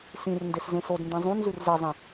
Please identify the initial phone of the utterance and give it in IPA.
s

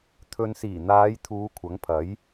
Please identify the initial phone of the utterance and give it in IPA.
t̪ʰ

